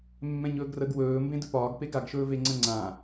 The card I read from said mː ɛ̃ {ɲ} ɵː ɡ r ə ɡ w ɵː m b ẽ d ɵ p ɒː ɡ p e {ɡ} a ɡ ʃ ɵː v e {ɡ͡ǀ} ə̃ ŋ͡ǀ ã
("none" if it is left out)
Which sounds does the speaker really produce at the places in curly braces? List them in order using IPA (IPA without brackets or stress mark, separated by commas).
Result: ɲ, ɡ, ŋ͡ǀ